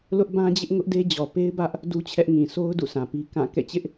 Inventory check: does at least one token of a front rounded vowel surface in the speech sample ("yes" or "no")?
no